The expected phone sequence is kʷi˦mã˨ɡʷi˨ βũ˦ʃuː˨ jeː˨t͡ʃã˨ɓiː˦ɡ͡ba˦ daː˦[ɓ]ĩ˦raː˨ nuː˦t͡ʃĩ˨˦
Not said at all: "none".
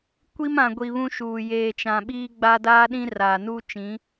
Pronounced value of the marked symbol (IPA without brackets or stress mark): ɗ